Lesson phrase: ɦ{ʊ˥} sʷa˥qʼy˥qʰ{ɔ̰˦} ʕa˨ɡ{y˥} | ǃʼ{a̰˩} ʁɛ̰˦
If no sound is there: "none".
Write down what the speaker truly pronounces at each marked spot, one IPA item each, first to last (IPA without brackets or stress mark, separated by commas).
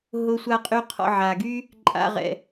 ʊ˥, ɔ̰˦, y˥, a̰˦